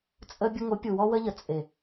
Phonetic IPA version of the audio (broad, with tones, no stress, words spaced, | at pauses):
t͡sʼə˧ bʲə˧ŋo˨˦ pʲu˨wɔ˧wə˧ʎə˨ t͡sʼe˨